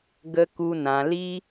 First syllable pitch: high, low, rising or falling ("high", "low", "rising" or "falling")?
high